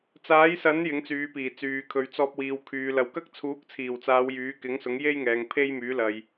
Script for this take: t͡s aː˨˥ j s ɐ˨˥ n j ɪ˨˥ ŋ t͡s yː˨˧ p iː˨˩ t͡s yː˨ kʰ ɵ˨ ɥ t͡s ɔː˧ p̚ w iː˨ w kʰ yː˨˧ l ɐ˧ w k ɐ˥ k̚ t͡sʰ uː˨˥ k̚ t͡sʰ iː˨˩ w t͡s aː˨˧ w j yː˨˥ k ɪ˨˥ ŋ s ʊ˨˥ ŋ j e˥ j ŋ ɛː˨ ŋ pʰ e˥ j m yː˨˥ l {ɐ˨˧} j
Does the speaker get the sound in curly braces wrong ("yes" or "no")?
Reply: yes